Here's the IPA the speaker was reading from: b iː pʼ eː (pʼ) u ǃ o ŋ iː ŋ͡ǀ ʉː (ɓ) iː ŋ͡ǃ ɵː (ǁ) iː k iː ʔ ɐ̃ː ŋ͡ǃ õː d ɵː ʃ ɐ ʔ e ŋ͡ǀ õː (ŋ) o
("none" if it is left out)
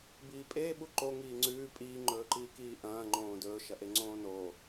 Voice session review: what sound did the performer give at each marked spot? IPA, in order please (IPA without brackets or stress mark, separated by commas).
ɓ, pʼ, ǃ, n